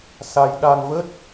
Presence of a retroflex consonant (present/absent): absent